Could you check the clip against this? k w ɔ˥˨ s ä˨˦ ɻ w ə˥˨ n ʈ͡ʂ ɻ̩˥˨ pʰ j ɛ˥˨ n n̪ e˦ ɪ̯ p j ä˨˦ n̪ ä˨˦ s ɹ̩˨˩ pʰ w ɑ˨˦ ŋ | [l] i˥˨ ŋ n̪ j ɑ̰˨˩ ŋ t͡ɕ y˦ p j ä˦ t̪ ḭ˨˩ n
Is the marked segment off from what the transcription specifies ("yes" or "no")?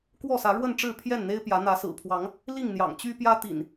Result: no